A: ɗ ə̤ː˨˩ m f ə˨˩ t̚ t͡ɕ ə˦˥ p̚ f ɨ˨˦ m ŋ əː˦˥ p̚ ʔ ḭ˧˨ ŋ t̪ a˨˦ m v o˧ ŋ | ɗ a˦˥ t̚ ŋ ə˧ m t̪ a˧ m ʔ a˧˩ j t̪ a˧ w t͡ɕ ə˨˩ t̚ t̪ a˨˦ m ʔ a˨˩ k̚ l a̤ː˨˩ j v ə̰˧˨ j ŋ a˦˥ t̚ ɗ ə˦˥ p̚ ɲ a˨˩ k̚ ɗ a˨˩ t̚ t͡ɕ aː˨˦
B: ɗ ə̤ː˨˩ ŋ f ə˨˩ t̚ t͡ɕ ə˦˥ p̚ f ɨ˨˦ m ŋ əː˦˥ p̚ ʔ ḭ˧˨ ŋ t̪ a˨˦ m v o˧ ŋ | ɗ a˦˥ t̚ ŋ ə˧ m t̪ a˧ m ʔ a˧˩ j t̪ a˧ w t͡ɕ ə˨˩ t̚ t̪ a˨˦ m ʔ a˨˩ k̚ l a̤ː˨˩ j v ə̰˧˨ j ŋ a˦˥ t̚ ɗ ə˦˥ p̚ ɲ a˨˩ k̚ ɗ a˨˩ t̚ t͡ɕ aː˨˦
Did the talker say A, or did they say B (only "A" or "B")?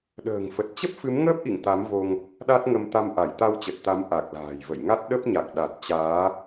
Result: B